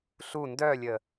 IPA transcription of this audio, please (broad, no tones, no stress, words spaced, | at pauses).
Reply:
ɬu ndœlʲə